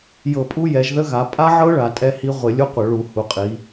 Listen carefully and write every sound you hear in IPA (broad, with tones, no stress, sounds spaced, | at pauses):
j ɤ˧˩˧ pʼ u˦˥ j ɛ˩˧ ʒ ð ə˦˥ ɣ a˩˧ pʼ a˦˥ ʕ ɤ˦˥ ɭ a˩˧ tʼ ɛ˦˥ h i˦˥ ʁʷ ɪ˧˩˧ lʲ u˦˥ qʷ ə˧˩˧ ɭ u˧˩˧ h u˩˧ qʼ i˩˧